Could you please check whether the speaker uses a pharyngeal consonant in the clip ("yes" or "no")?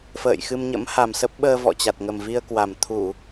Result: no